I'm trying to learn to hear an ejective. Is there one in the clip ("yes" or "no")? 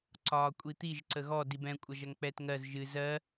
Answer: yes